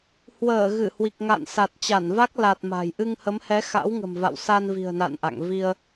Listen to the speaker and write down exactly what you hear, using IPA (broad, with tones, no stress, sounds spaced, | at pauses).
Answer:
h w əː˧˩ ɣ ɨ˧˩ h w i˨˩ k̚ ŋ a̰˧˨ n s a˨˩ t̚ t͡ɕ a˧˩ n v a˦˥ k̚ l a˨˩ t̚ m a̤˨˩ j ʔ ɨ˧ ŋ h ə˨˦ m h ɛ˨˦ x a̰˧˥ w ŋ ə̤˨˩ m v a̰˧˨ w s a˧ n v i̤˨˩ ə̯ n a̰˧˨ n ʔ a̰˧˨ ŋ v i˧ ə̯